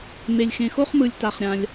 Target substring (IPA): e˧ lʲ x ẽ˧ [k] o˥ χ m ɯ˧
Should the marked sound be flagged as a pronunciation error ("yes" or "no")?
yes